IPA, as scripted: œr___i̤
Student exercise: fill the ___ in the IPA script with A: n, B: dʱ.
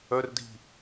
B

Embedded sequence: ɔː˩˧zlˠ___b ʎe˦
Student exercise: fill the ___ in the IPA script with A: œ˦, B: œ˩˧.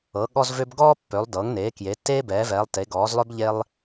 A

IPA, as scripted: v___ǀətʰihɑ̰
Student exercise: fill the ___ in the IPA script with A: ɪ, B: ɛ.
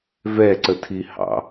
B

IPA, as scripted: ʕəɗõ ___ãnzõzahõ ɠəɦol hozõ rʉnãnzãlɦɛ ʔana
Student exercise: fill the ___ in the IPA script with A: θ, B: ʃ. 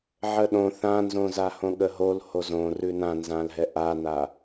A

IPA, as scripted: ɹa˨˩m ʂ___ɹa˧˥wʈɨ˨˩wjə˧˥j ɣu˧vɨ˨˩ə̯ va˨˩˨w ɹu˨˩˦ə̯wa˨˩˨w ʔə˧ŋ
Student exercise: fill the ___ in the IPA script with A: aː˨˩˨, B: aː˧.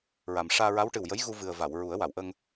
B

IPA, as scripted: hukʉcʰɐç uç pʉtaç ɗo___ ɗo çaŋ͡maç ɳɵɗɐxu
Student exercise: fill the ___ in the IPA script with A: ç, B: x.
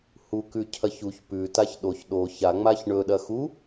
A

